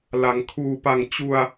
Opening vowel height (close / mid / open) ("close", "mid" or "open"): open